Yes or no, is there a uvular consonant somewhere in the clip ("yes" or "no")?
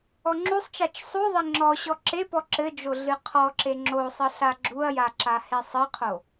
yes